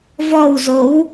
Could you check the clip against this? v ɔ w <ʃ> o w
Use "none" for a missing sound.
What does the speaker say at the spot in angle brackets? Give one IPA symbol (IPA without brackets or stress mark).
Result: z